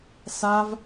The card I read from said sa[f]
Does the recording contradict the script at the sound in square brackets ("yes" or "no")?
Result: yes